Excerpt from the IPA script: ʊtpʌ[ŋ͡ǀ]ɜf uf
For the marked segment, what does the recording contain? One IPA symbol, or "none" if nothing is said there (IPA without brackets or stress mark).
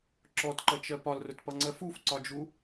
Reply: ŋ͡ǀ